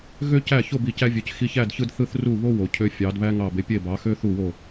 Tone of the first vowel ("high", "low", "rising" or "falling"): high